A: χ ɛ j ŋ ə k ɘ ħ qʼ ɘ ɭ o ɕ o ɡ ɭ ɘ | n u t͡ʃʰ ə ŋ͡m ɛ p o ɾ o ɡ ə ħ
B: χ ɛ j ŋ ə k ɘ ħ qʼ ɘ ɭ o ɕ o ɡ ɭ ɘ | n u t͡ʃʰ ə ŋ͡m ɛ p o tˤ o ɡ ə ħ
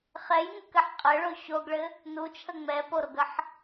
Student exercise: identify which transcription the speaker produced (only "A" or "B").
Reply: A